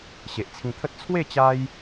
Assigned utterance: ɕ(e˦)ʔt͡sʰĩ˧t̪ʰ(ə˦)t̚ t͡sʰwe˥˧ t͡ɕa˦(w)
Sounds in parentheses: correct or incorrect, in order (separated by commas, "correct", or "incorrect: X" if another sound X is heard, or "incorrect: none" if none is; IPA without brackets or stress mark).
incorrect: e˨, correct, incorrect: j